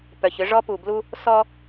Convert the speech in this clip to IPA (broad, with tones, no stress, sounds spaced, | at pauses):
p œ˨ ç ʏ˦ ʐ ɔ˦ p u˨ b l u˦ | s ɔ˦